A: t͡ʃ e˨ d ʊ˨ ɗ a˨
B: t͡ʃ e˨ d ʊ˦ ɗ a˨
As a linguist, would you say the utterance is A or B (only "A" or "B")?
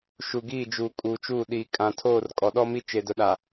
A